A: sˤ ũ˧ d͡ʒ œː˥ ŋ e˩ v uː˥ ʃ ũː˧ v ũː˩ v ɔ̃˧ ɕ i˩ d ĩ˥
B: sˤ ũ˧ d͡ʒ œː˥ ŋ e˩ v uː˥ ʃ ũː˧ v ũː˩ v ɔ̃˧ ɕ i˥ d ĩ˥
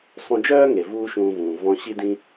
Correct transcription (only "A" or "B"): B